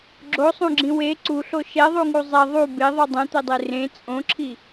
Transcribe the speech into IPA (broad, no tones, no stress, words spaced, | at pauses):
ɡ͡ǁosˤũɡ͡ǁĩ we ǀuɬo ʃɛðˤuŋu zˤɛ ðˤu beðˤu dˤɛ̃t̪ɛdˤe rẽ t͡sʼõǁʰi